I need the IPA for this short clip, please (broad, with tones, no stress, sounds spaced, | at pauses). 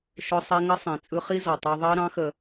ʃ ʊ˦ sˤ ɛ˦ ŋ ə˦ sˤ ĩ˨ t͡sʼ ɯ˧ χ i˦ z ɔ˨ tˤ əː˧ ðˤ əː˦ ɾ ɑ̃˦ x ə˧